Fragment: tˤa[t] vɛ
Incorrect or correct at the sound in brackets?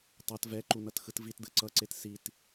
correct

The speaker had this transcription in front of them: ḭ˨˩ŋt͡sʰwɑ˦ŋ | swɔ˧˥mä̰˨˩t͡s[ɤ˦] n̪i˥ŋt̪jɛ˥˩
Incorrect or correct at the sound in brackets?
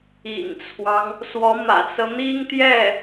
correct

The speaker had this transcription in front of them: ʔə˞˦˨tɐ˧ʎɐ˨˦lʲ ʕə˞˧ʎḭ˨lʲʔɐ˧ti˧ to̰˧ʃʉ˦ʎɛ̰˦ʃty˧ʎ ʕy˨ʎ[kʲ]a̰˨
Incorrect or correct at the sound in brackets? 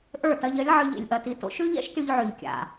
correct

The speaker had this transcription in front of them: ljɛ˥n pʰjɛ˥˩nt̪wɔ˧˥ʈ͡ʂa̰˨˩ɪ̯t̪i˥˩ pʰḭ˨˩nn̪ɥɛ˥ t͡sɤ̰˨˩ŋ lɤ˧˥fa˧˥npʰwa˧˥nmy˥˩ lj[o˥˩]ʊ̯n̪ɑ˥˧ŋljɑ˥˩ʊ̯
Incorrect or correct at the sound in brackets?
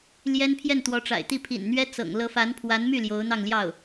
incorrect: o˧˥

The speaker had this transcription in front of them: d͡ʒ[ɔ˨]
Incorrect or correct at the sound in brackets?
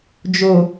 incorrect: o˨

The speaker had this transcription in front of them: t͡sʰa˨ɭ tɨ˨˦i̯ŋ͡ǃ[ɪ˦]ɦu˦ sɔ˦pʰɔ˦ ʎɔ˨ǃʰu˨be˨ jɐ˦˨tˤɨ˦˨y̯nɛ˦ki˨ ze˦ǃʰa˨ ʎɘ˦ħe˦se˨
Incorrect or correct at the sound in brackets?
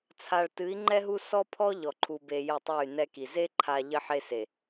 incorrect: ɛ˦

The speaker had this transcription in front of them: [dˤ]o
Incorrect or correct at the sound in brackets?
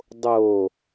correct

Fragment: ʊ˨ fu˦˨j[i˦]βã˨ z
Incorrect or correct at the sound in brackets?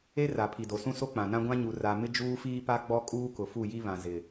correct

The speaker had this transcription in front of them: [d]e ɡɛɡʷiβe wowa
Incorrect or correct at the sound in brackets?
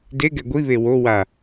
correct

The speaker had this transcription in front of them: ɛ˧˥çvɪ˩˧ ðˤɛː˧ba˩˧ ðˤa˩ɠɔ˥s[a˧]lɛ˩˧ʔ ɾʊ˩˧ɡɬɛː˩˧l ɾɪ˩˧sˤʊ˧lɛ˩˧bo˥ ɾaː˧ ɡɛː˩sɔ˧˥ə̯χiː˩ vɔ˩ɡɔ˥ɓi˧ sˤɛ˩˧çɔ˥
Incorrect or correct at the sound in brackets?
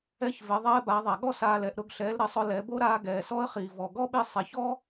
incorrect: aː˧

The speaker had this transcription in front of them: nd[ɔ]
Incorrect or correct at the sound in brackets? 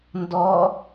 correct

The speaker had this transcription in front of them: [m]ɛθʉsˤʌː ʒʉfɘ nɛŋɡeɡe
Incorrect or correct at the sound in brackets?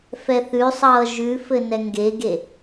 incorrect: f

